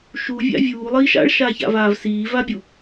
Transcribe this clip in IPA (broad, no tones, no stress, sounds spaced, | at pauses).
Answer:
ʃ u vʲ a̰ vʲ uː lˠ iː ʃ a̰ ɭ ʃ aː ç a̰ v aː v s iː v a bʲ u